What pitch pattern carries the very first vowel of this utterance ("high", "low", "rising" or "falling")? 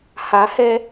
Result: rising